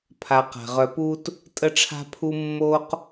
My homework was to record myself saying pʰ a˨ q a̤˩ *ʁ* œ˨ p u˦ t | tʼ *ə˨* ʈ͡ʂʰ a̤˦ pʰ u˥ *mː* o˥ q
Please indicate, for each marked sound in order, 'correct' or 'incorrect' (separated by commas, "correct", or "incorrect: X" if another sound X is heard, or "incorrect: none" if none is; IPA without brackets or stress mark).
correct, incorrect: ə˦, correct